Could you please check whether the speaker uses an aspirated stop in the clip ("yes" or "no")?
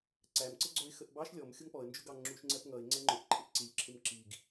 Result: yes